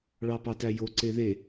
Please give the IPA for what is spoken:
ɭɑpɑtæjo ǀeðe

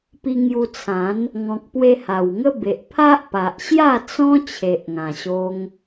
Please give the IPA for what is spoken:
pi˧ŋju˧t͡sʰã˨˦n | ŋɔ̃˨k̚pwe˧ ha˨˩wŋə˦be˨ʔpʰa˦ʔ pa˨ʔɕja˥˧t͡sɔ̃˦ t͡ɕʰe˨ʔŋã˨˩ɕo˧ŋ

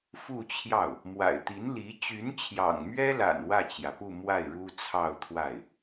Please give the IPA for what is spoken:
fu˥˧t͡ɕʰjɑ˥˩ʊ̯ | mwa̰˨˩ɪ̯t̪i˧˥nli˧˥ t͡ɕy˧˥nt͡ɕʰjɑ̰˨˩ŋmɥɛ˥la̰˨˩n wä˥˩t͡ɕjä˩pu˥˧ mwa˥˩ɪ̯ɻu˥t͡sʰɑ˥˧ʊ̯t̪ʰwa˥˩ɪ̯

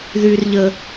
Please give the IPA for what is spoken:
ðy˧rʎə˧

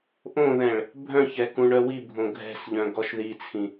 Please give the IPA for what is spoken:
ʔõðɛ̃ɭ | bʱœ̃çɛ kũɳœwibʱõ ɡʱɛ̤sʎœ̃ ɡɔʃðit͡sʰĩ

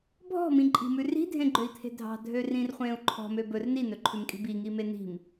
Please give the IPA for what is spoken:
bʱɔ̤mĩǃʼi̤mʉ ri̤dʱẽɡ͡ǃøi̯t̪ʰe̤ dʱɑ̤dʱørĩrχʷẽːu̯ ǃʰɔ̤mø bɵr ninɵǃʰʉmkʼi̤ biŋime ni̤m

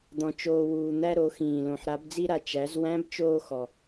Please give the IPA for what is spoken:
d̪ɔ̃˩ t͡ʃoː˩wuː˩n̪æ˧ ɾo˩˧xĩː˩ lõ˩ħɾa˩˧bd͡zi˧ɾa˩ t͡ʃæ˩˧z wæ̃˧˥bt͡ʃoː˧ xɔ˩

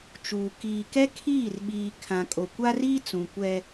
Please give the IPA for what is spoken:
t͡ʃuː˨ kiː˨kɛ˦ kʰiː˦˨rɓiː˨ kʰã˨ kʼo˨kʷa˦riː˦ t͡sũ˨ kʷɛ˦

